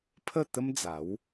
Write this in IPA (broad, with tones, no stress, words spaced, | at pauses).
pʰə˥˧t̪ə˦md͡za˨˦w